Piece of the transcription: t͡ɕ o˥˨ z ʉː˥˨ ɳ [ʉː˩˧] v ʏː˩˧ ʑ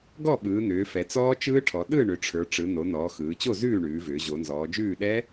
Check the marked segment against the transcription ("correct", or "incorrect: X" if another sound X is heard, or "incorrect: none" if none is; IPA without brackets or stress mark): correct